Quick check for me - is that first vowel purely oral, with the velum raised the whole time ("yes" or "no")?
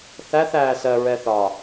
yes